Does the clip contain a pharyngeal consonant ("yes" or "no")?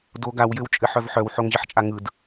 yes